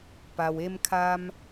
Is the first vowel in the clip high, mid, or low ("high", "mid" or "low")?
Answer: low